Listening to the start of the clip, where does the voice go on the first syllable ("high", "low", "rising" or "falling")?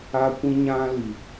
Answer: high